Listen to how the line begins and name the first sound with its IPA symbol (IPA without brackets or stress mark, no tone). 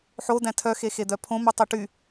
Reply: ħ